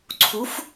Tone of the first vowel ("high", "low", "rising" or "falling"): rising